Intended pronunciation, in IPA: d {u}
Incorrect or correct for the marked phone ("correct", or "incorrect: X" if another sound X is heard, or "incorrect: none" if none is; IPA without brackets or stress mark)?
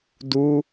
correct